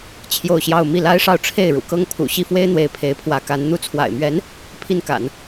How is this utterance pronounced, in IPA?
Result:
t͡ɕʰjo˥˧ʊ̯ɕjɑ˥˧ʊ̯ mi˥˩la˥ɪ̯ʂɑ˥˧ʊ̯ ʈ͡ʂʰe˥˩ɪ̯ɻṵ˨˩kɤ˥ŋ pʰṵ˨˩ɕi˥˩fwe˥ɪ̯n̪we˧˥ɪ̯ pʰe˧˥ɪ̯pʰwä˧˥ka˧˥n n̪u˧˥t͡sʰwa̰˨˩ɪ̯mɥɛ˧˥n | pʰi˥˩nka̰˨˩˦n

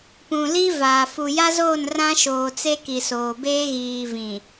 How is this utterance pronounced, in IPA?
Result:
pũ˨li˦vaː˨ fu˨ja˦zoː˦˨n rã˦ʃoː˨ t͡se˦ki˨soː˨beː˦ ɣiː˨vĩ˨

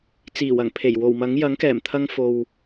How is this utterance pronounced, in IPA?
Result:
t͡siː˨˩wɐ˨˩ŋ pʰe˨˩j wo˨˩wmɐ˨˥ŋ jɐ˨˥ŋkɛː˨˩mt̪ʰɐ˧ŋ fo˨w

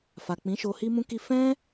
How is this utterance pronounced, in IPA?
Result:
fa˨k͡pĩ˨˦ʃo˧ hi˦mũ˦ki˦ fɛ̃˦

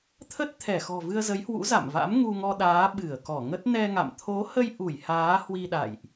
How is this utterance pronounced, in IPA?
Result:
t̪ʰə˦˥t̚ t̪ʰɛ˧˩xɔ̤˨˩ vɨ˧ə̯zə˨˦jhwṵ˧˥ za̰˧˨mva̰˧˥m ŋu˧ŋɔ˧ɗaː˨˦ ɓɨ˧˩ə̯kɔ˧˩ŋə˦˥t̚ nɛ˧ŋa̰˧˨m t̪ʰo˨˦hə˧j ʔu˧˩j haː˨˦hwi˧ɗa̰˧˨jʔ

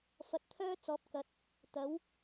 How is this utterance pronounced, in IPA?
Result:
fɐ˨˥t̚t̪ʰœː˥t͡sɔː˨˥p̚ kɐ˨˥t̚ | t̪ɐ˨˥w

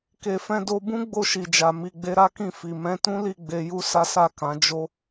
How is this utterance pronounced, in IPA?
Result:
ke˨fɛ̃˧ do˧bũ˦ ɡ͡bo˦˨ʃi˨d͡ʒa˨ mi˨ɡ͡be˧ɾa˦kĩ˦˨ fi˨ mɛ̃˨˦tũ˦li˦˨ ɡ͡be˧ju˦ sa˦sa˦˨ kã˨˦ d͡ʒo˦

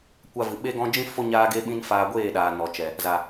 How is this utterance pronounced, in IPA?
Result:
kʷa˧vɨ˨ ɓe˦ɡɔ̃˦ d͡ʒĩ˦ fo˦ ɲaː˦ɡe˦ɓĩ˦nfaː˧ ɡʷeː˦˨ɗaː˨ nɔ˨t͡ʃɛ˨ | za˨

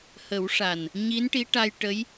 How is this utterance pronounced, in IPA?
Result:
hə˨˩˦wʂa˨˩n | ɲi˧˥nʈi˧˥ʈa˧j ʈə˧˥j

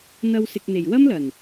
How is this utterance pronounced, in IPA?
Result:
n̪ɐ˧wsɪ˨k̚n̪e˨˩j wɐ˥mlɐ˨˩n

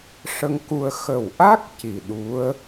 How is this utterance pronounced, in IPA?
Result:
ʂə˧ŋku˧ə̯ xə˨˩wʔa˦˥k̚ ci˨˩ɗu˧˥ə̯

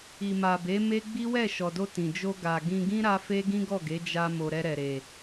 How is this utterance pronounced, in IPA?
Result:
i˨ma˨be˨˦ me˦ɡ͡bi˦wɛ˦˨ ʃɔ˨do˧ tĩ˨d͡ʒo˧ ɡa˨ɡĩ˧ɡĩ˦ ɾa˦fe˦ ɡĩ˦ɡɔ˦˨ɡe˨˦ d͡ʒa˧mo˨ ɾɛ˧ɾɛ˨ɾe˨

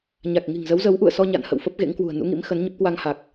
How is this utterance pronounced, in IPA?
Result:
ɲa˨˩k̚ŋi̤˨˩ŋzə˨˦wzə˨˦w ʔṵ˧˨ə̯sɔ˧ ɲa̰˧˨nhə̰˧˨wfə˦˥p̚ ɣḛ˧˥ŋkwṳ˨˩ə̯ nṵ˧˥ŋḭ˧˥mxə˨˦nɲə˦˥p̚ kwa˧ŋha˨˩k̚

